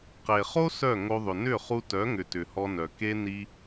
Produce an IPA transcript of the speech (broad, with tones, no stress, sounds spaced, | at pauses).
q e˨ χ o˦ s œ˦˨ ŋ o˧ ðˤ ʏ˨ n ʏ˦˨ χ u˧ t œ˨˦ ŋ ʏ˨ t ʏ˨ h ɔ˧ n œ˨ k e˦ n i˦